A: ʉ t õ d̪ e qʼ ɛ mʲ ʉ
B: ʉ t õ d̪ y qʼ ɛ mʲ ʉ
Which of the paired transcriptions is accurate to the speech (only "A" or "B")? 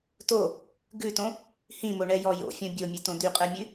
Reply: B